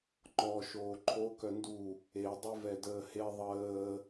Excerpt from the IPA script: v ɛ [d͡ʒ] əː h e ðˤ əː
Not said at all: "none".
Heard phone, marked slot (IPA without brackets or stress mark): d